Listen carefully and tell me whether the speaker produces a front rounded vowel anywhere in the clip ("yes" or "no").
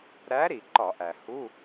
no